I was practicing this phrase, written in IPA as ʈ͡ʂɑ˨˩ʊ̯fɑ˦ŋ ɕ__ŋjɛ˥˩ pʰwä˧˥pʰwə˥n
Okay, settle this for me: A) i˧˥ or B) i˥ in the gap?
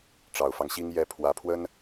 B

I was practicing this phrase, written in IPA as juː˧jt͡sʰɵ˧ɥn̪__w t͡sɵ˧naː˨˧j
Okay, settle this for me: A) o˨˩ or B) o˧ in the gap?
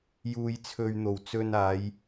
A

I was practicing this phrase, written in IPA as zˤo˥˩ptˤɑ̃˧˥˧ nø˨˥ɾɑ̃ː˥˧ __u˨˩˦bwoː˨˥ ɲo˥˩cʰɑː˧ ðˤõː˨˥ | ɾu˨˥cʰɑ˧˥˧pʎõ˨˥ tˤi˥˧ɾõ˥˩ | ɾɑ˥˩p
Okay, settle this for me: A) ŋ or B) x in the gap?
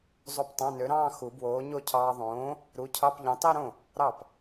B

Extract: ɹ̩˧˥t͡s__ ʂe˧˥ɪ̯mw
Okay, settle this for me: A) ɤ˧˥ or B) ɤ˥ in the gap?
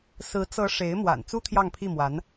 A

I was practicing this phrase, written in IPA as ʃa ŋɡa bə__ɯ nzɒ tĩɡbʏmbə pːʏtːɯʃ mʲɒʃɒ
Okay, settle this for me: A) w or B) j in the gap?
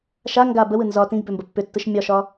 A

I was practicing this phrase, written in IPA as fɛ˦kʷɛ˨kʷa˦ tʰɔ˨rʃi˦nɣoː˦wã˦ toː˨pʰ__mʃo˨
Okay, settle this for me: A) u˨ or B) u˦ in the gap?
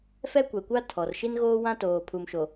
A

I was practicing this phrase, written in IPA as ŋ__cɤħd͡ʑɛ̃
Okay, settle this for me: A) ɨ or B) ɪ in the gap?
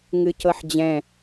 A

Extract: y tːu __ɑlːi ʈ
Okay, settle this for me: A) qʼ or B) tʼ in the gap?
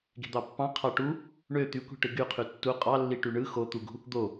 A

